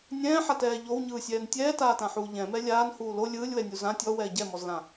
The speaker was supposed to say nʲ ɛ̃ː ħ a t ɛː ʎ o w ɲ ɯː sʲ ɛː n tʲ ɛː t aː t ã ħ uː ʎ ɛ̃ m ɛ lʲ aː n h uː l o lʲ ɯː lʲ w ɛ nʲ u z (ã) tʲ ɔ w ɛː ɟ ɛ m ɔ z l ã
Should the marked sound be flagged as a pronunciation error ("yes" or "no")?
no